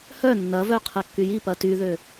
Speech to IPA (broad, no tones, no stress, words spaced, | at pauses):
hœ nːɐvœ qʰɐkːyjipɐ tyðø